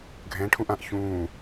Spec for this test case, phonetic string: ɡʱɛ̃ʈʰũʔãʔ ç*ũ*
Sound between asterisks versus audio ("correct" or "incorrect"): incorrect